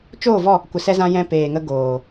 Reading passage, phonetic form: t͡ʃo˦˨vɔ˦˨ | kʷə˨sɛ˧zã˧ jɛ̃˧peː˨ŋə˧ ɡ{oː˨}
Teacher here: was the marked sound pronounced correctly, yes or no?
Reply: yes